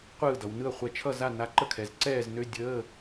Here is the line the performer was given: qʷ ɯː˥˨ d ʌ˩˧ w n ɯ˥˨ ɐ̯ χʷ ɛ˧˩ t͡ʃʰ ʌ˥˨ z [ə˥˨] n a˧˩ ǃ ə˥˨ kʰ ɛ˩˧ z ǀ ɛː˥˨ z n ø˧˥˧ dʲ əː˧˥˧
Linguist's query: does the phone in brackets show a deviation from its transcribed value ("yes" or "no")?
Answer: yes